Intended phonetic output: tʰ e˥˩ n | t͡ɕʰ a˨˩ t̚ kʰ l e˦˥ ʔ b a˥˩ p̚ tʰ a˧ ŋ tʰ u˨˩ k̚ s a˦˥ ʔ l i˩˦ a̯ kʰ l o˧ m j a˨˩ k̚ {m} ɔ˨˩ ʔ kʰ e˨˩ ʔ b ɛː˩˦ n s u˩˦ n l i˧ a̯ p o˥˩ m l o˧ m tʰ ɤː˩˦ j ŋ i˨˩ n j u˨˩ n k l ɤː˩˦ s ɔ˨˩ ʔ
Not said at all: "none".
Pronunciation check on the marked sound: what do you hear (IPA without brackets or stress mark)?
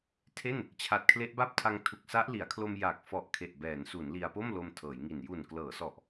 f